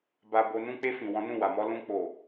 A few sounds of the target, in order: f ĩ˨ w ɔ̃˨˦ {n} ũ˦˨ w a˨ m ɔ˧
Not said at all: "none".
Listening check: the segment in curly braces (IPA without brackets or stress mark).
n